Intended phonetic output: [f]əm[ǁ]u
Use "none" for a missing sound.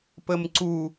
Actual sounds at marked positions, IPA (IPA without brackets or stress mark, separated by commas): p, ǀ